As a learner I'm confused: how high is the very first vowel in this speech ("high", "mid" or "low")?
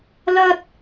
low